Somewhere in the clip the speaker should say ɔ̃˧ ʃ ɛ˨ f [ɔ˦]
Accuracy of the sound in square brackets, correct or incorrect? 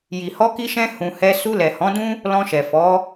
incorrect